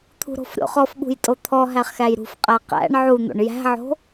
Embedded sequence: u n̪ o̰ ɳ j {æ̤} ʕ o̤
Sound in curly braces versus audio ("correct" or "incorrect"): correct